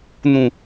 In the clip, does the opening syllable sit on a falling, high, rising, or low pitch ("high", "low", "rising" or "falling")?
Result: low